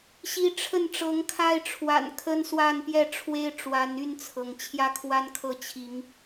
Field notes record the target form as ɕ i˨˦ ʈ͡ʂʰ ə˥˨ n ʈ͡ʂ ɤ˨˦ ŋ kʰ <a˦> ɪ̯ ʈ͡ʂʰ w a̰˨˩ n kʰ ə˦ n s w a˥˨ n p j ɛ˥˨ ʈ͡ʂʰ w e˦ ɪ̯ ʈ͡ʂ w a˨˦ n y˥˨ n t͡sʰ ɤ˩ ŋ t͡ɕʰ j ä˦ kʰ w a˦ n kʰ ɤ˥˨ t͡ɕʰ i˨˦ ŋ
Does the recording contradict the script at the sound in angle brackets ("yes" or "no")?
no